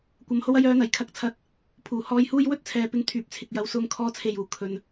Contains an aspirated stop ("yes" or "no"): yes